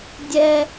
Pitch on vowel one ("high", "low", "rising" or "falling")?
high